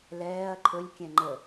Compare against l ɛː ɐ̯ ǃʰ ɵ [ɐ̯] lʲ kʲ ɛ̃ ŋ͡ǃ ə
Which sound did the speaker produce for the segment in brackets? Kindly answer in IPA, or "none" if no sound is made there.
none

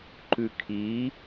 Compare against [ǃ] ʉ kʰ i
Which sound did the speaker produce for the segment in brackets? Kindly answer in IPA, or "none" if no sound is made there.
ǃ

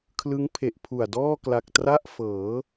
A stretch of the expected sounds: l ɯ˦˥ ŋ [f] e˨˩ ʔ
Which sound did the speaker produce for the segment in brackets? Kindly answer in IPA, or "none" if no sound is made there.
pʰ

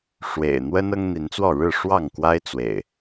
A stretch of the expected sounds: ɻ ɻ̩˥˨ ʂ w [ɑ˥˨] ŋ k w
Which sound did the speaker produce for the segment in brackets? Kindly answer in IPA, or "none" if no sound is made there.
ɑ˥˨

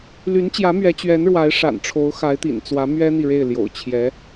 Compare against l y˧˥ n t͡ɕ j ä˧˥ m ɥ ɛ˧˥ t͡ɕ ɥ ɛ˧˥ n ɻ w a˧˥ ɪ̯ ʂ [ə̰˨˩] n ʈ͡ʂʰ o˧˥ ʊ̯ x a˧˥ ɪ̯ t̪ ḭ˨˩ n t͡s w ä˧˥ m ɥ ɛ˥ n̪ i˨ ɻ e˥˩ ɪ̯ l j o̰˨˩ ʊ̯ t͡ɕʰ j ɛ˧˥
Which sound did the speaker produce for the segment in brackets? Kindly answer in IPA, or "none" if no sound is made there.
a̰˨˩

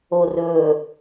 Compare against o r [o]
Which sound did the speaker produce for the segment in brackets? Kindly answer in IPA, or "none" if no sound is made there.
ɵ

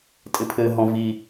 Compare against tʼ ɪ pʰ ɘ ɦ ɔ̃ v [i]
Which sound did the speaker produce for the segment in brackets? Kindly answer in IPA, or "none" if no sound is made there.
i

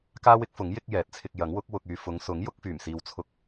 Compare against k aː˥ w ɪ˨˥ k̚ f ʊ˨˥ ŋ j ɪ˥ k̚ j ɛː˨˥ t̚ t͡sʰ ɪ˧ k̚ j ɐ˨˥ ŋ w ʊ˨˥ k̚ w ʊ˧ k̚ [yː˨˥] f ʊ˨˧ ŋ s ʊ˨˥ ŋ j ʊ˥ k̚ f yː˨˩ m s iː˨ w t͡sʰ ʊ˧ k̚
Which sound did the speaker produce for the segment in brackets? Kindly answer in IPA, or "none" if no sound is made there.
yː˧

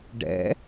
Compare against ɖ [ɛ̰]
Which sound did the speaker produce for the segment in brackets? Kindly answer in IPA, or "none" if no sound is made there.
ɛ̰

